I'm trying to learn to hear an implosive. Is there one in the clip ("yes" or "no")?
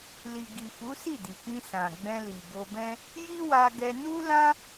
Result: no